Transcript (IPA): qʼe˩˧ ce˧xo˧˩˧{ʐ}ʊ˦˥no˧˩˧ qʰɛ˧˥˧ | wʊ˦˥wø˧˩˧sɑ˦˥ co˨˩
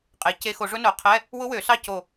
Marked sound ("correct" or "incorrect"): correct